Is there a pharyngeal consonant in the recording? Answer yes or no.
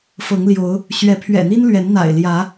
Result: no